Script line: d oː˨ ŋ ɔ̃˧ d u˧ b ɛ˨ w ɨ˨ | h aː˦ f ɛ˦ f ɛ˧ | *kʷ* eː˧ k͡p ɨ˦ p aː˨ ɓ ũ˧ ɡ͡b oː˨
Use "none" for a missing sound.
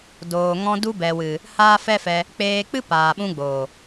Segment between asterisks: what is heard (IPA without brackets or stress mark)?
k͡p